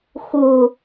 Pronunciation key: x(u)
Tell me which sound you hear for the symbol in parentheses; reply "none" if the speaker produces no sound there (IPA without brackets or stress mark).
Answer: u